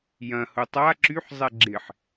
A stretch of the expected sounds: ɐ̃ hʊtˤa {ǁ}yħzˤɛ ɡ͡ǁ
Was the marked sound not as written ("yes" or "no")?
no